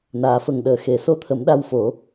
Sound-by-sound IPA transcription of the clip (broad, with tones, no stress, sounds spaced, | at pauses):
n aː˨˩˨ f ə˨˩ ŋ ɗ əː˨˩ x e˨˩ s o˧ t̪ʰ ə˨˩˦ m ɗ a˧ w f o˨˩˦